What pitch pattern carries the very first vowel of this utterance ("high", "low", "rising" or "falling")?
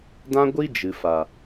high